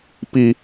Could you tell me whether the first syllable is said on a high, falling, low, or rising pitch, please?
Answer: high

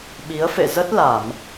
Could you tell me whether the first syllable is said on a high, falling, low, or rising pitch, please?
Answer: rising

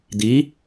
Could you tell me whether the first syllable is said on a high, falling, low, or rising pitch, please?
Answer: rising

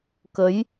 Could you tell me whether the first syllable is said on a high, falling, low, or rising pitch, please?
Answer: rising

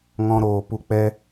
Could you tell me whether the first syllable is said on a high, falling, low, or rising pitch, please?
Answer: high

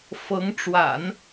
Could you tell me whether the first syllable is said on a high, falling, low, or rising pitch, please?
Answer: rising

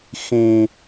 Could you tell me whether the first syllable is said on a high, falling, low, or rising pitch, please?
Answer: high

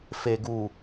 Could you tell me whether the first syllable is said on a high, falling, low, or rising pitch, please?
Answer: low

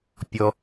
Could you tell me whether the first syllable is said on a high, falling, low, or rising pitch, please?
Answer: low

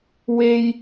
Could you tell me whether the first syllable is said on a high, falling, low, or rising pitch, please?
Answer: low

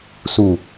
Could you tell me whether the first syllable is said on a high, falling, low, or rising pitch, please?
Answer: low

